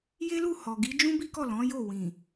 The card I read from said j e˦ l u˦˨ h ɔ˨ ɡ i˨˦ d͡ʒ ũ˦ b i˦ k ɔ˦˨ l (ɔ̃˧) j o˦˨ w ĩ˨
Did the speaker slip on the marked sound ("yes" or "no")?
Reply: yes